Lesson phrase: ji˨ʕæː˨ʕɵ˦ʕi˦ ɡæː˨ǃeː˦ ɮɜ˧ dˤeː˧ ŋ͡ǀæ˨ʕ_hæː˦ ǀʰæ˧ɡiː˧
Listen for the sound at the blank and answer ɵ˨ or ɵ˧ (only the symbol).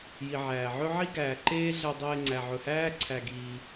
ɵ˨